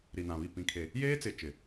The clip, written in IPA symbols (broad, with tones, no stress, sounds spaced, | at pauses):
ɾ i˨ n ã˨ β i˦˨ p ĩ˨ kʰ e˨ | j eː˦ t͡s ɪ˨ t͡ʃ ɪ˨